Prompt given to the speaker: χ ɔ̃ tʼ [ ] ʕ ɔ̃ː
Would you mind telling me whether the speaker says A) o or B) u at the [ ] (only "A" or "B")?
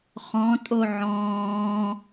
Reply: A